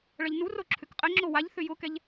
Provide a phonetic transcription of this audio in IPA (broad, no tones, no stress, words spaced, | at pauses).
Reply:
ɭɐʎnuro ǁʰʏkqʼɪŋ͡ǁo waʎ θʏjʊkɛʎ